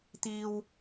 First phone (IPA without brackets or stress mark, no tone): t̪